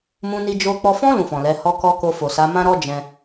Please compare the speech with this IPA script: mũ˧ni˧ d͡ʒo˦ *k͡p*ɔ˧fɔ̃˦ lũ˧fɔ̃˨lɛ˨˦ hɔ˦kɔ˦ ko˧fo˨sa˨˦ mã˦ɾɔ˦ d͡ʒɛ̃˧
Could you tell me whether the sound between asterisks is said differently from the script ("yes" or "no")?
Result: no